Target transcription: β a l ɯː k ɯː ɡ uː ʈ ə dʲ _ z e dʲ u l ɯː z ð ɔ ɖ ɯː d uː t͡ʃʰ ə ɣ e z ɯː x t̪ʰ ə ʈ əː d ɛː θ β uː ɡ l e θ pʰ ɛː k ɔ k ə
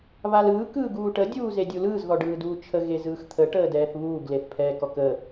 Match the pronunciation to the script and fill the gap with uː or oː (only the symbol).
uː